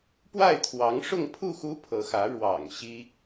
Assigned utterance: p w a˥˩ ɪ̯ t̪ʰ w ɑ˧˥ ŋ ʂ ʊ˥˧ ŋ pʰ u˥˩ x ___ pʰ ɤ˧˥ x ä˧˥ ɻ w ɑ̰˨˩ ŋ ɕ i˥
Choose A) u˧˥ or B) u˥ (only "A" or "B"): B